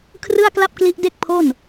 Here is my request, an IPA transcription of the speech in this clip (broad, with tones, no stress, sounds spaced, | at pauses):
kʰ r ɯ˥˩ a̯ k l a˥˩ p̚ k l i˦˥ ʔ d e˥˩ k̚ pʰ o˥˩ n